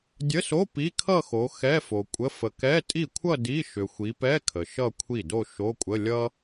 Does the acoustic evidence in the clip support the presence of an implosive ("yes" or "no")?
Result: no